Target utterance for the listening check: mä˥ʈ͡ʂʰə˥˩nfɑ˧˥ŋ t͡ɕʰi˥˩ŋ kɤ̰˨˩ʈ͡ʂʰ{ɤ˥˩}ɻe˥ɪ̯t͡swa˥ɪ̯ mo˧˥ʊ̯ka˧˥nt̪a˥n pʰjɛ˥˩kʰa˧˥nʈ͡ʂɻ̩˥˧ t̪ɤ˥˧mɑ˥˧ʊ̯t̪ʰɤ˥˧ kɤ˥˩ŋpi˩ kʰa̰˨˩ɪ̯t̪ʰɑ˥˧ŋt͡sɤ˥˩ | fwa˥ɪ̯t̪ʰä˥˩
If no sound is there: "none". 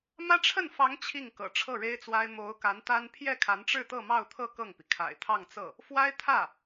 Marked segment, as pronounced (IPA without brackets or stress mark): ɤ˥˩